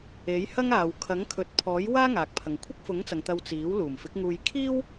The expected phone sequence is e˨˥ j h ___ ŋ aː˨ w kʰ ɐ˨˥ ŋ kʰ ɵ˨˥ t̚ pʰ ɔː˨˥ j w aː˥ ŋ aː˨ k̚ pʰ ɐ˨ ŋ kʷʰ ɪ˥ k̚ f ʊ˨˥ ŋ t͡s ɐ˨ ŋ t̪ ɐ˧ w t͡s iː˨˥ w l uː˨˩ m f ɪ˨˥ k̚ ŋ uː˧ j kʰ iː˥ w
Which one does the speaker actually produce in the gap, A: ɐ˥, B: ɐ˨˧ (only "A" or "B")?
A